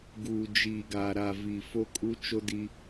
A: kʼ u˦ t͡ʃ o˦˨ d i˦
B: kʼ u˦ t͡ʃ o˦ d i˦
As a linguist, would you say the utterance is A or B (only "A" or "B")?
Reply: B